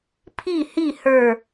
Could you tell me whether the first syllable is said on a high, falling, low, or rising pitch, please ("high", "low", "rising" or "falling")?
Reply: falling